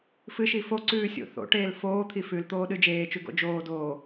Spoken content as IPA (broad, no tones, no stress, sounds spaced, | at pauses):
f ɨ ʃ i f o ǀ ʉː sʲ o̰ θ o̰ ʈ eː l f oː t̪ʰ i f ʉ l t̪ oː ɗ ɨ d͡ʒ eː t͡ʃ ʉ ɡ o̰ d͡ʒ oː d oː